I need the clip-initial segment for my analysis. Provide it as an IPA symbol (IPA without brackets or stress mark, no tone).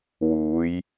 w